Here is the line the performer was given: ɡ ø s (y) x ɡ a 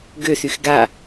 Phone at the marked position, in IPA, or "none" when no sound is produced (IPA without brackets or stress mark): y